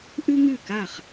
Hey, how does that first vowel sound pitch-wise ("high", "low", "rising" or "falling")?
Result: high